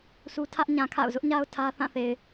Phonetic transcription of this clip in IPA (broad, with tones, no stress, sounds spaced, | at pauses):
s u˦ tʰ ä˦ ʔ ɲ ã˨ kʰ a̰˦˨ ʊ̯ z ʊ˦ ʔ ɲ a˦ ʊ̯ tʰ ä˦ θ ã˦˨ θ e˨ ɪ̯